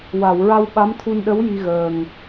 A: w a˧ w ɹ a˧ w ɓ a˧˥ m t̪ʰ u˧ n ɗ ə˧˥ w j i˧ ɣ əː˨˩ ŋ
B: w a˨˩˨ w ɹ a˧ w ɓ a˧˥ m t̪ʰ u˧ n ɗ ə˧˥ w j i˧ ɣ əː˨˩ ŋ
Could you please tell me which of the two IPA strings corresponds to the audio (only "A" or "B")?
B